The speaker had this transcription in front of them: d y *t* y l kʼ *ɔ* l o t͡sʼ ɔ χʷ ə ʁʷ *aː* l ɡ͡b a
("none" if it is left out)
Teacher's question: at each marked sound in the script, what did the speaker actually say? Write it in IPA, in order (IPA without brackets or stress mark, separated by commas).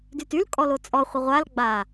t, ɔ, a